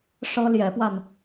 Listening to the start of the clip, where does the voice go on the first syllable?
high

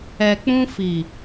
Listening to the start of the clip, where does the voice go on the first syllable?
low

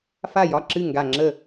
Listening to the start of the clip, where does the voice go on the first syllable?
falling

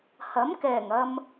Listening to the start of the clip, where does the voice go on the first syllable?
rising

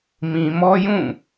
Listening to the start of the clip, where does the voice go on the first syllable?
low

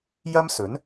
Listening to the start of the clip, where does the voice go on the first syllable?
high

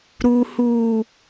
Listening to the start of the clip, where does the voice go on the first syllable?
low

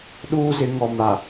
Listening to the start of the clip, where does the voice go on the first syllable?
high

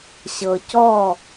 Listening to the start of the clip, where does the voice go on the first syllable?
low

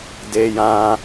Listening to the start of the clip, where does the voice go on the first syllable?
high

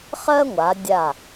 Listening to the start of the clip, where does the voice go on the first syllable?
high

